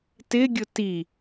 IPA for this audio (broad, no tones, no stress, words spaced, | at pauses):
tɪɡʲʊ ti